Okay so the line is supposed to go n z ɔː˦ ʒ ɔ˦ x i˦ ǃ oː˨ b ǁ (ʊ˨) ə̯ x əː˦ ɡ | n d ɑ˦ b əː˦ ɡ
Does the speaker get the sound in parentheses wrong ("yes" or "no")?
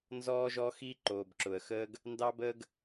no